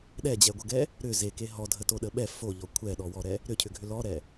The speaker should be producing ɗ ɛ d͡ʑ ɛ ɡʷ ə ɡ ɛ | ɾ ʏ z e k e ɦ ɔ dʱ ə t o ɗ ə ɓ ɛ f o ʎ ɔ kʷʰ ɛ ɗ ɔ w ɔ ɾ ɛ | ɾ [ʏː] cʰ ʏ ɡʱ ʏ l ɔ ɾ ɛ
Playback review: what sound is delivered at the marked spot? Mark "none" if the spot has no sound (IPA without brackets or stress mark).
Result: ʏ